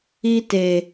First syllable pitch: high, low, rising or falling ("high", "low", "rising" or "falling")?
high